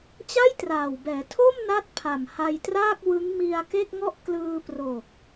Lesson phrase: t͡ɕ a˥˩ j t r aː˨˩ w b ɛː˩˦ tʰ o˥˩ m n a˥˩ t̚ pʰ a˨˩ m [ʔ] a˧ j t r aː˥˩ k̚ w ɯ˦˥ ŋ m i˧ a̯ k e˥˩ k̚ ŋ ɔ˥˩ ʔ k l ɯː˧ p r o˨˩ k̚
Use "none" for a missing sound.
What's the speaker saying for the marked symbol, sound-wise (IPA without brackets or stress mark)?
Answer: h